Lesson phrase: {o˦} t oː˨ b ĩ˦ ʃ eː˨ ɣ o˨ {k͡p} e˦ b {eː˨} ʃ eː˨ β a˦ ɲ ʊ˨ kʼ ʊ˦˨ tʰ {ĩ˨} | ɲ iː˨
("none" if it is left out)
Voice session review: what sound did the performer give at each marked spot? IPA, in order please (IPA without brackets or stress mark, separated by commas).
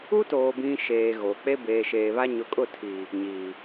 u˦, k͡p, eː˨, i˨